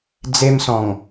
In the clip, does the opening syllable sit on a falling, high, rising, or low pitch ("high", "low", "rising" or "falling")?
high